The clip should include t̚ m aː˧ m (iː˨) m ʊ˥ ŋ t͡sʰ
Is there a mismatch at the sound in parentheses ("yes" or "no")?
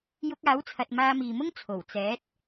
no